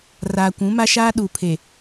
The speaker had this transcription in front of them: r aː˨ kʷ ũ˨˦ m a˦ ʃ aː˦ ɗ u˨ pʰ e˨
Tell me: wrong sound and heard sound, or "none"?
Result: none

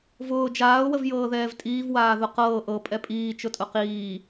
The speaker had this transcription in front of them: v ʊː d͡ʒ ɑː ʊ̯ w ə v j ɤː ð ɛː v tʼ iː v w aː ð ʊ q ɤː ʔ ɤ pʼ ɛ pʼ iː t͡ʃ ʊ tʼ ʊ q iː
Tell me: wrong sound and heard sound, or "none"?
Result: ɑː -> aː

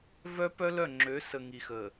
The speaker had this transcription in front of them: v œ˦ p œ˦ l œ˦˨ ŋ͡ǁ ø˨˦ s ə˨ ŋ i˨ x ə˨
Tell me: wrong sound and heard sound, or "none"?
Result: none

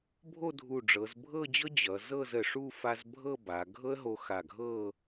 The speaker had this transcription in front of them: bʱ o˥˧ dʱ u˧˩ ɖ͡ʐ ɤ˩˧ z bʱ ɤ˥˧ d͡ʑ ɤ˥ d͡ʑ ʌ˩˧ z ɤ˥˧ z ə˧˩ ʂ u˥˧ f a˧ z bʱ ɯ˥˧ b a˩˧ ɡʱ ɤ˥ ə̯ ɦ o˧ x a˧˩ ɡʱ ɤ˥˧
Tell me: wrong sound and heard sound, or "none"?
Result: ɯ˥˧ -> ɤ˥˧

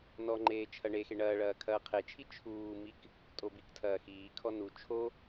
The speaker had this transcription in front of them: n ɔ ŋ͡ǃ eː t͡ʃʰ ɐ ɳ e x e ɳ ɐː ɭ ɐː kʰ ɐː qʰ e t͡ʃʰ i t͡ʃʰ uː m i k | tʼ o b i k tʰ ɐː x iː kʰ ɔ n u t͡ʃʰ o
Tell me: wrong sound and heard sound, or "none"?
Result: none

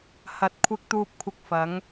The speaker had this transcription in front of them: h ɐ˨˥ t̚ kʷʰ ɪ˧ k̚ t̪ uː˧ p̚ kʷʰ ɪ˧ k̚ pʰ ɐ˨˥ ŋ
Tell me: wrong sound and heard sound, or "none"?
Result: pʰ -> f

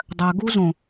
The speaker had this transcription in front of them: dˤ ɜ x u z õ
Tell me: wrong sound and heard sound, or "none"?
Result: x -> ɡ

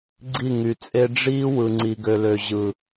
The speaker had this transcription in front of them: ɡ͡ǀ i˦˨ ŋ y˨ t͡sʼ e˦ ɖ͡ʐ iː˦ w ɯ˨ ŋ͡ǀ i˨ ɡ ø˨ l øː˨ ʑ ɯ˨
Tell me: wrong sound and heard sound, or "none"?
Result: øː˨ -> ø˨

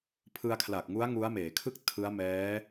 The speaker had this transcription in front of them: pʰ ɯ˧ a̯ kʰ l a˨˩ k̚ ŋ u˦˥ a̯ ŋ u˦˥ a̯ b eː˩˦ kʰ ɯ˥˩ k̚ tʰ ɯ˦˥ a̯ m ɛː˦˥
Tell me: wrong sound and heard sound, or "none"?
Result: b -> m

